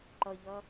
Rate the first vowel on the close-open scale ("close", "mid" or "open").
mid